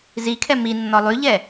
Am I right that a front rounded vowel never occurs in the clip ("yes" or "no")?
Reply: no